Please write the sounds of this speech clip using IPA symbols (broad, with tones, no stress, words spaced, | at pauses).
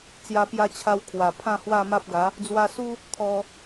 t͡sja˧pja˧t͡ɕʰa˧w kʰwa˨˩ pʰã˥˧hwa˥˧ma˦p̚ɡa˨˦ | d͡zwa˧su˦ | t̪ʰɔ˧